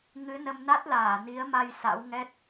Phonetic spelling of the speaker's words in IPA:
ŋɨ˨˦nə˧m na˦˥t̚laː˧˩ ni˨˦ə̯ma˧j sa̰˧˥w ŋɛ˦˥t̚

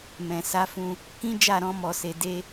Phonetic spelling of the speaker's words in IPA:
mɛ̃˨ sa˨˦fũ˧ | kĩ˦d͡ʒa˦˨ɾɔ̃˧ mɔ˧se˧ de˦

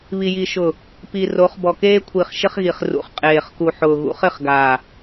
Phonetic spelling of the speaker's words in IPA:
βi˨ji˨ʃʊ˨ | pi˨ ro˨˦χbɔ˨keː˦ kʷʰi˨χʃɪ˦χɣi˨χ rṵ˨χqʼeː˨χku˨ħʊː˨ ɣṵ˨˦χɪ˦˨χɡaː˨

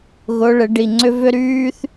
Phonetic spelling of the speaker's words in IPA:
ɣʊː˧˥ ɭɪ˩˥ɖi˩˧˩ŋ͡ǀʏ˥vʏ˥ ɾyː˥θ

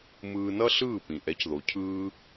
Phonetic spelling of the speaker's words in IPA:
mɯː˧nʌ˥ɬɯː˥˩pĩ˩ ʔɛ˩˥cðo˩cʰɯː˧

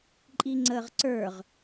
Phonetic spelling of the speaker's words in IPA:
ǃʼiŋ͡ǀəːʁǀə˞ʁ

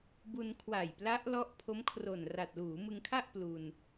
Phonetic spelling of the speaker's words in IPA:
bu˧nkʰwa˨˩jpla˦˥ʔ lɔ˦˥ʔpʰo˦˥mkʰro˨˩nra˨˩t̚ luː˩˦mɯ˧ŋkʰa˥˩ʔ plu˧n

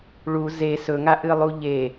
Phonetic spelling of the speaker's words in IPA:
ɭu ze sɵŋaʔɨlˠu ʎe

